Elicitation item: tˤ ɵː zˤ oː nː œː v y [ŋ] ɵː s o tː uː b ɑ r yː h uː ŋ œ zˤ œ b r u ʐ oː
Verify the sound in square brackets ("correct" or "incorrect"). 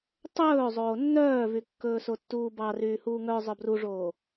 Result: incorrect